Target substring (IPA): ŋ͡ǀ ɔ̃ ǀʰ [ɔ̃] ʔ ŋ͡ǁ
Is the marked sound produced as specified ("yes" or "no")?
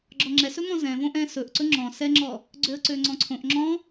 no